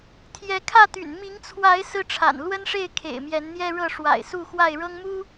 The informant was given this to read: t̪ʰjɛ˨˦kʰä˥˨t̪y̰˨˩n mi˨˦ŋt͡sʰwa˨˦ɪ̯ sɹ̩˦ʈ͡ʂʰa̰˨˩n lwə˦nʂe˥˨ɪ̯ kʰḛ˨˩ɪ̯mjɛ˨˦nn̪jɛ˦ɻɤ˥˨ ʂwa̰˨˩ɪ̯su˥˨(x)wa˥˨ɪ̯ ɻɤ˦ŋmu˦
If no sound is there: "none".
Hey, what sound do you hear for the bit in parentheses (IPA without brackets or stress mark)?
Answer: x